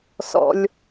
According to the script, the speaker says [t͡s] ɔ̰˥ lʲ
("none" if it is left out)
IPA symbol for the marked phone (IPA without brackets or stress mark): s